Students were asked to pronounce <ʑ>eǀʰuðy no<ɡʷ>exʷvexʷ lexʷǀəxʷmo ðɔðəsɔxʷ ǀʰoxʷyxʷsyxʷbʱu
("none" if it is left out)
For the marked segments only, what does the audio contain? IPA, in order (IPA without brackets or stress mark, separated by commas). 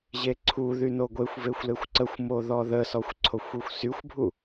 ʑ, ɡʷ